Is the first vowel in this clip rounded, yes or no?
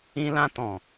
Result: no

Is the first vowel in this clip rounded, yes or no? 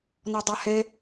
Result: yes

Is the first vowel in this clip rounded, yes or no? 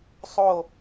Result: yes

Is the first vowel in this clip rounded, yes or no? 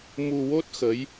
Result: yes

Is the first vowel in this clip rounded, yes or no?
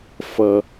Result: no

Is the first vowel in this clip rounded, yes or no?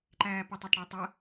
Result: no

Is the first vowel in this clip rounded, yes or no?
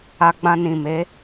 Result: no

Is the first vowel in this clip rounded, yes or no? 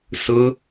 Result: yes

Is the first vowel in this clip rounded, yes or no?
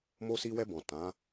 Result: yes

